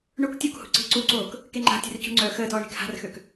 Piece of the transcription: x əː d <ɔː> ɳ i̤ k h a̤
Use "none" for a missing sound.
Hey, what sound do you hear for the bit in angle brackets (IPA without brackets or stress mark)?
ɔː